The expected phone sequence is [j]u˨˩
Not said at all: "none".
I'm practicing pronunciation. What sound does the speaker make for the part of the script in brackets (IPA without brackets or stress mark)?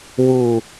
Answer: w